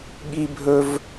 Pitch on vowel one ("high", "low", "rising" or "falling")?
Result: high